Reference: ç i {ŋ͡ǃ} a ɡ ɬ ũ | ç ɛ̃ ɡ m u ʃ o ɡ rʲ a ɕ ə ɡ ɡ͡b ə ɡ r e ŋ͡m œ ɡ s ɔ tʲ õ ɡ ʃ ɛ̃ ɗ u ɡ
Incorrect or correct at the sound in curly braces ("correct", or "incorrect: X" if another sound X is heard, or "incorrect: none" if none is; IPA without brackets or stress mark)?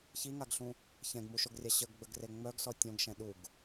incorrect: ŋ